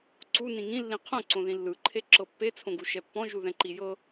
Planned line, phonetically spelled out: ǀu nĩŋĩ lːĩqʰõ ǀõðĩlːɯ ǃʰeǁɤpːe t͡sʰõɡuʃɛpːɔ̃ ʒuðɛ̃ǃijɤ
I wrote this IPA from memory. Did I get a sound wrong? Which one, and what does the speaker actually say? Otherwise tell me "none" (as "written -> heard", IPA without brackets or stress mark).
none